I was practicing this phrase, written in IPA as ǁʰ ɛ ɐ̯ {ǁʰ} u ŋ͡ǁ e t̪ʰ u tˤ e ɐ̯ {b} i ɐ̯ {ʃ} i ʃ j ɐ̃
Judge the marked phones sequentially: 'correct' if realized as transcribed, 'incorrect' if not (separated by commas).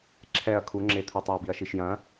incorrect, correct, correct